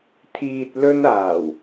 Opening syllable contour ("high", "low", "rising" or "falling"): low